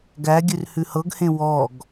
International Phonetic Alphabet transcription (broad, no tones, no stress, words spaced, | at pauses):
ɡæɡʲʉr hʉhɤɡhẽ wɔɡ